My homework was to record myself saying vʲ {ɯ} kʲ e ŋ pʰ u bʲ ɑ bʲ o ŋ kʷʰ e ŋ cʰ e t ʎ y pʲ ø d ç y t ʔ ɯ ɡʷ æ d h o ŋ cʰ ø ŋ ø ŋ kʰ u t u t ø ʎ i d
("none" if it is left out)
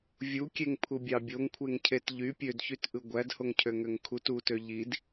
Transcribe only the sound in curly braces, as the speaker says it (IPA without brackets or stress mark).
u